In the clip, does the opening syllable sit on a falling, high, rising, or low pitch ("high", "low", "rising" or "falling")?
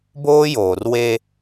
high